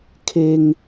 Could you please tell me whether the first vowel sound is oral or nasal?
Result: oral